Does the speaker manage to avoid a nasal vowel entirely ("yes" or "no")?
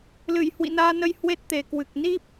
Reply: yes